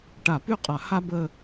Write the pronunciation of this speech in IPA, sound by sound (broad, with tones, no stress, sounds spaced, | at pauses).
ʈ a˧˩ p y˥˧ qʼ a˧˩ h a˥ b ə˥˧